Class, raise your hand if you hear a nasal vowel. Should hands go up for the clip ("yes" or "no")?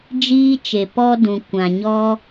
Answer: yes